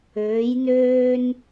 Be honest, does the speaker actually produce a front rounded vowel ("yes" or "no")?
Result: yes